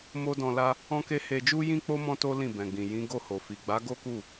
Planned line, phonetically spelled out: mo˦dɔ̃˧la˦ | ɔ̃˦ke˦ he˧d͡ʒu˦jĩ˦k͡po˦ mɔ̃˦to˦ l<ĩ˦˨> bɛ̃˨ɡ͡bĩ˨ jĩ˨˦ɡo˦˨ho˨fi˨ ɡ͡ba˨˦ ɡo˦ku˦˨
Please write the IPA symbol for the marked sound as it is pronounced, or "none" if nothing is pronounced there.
ĩ˦˨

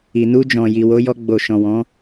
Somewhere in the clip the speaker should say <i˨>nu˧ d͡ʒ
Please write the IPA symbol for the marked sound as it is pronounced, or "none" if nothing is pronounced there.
i˨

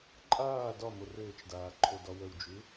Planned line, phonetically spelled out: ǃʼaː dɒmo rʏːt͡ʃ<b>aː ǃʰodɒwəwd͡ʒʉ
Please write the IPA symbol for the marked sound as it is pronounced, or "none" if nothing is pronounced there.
d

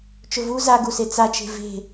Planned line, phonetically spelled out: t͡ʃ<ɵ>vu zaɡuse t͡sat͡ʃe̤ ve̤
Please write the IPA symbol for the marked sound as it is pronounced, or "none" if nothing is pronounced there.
ɵ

